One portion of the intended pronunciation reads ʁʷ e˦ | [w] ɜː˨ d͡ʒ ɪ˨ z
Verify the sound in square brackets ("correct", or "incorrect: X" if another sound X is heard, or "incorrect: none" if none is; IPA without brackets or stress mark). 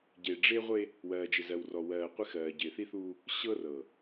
correct